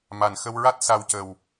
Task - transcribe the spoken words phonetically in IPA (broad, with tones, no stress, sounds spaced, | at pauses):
m a˨˩ n x ə˧ w ɹ a˦˥ t̚ s a˧ w c ə˨˩ w